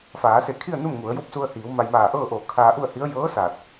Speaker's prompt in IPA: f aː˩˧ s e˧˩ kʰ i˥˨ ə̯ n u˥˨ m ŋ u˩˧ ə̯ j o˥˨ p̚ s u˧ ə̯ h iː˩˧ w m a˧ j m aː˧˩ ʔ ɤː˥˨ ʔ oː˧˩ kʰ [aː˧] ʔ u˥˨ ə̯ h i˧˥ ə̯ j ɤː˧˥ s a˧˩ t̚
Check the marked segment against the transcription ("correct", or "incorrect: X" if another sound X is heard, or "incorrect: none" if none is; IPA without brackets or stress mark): correct